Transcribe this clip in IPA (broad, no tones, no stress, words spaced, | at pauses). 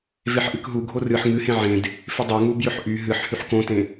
veħʔɨkɦu ɡʱorɨħ ŋɨhẽ ʕẽd | fʏdˤɤŋu bjʏħʔy ɦɨħ hyħkõtẽ